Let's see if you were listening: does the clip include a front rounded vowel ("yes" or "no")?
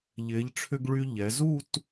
yes